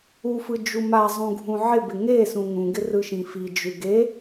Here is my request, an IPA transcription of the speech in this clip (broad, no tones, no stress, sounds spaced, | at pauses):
u f ɯ d͡ʒ u m a zˤ ũ ɡʱ ũ ʕ ɪ b ɪ ŋ e s ũ ŋ ũ ɡ ɪ r ɯ ʃ ĩ f i d͡ʒ ʉ ɡ e